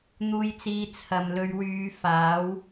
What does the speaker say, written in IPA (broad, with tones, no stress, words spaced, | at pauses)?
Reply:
n̪uː˨jt͡siː˨ t͡sʰɐ˨m lɵ˨˧ɥwyː˨˧ faː˨˥w